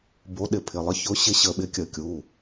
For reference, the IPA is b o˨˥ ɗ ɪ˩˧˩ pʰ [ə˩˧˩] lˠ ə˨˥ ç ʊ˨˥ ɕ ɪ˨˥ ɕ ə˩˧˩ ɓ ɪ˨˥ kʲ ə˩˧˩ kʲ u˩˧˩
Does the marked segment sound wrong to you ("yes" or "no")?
yes